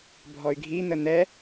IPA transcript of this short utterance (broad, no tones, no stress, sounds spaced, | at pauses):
bʱ ɔ y̯ ɡʱ i n̪ ə n̪ ɛ